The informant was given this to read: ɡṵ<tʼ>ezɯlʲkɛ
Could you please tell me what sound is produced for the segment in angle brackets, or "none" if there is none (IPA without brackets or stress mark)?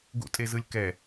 tʼ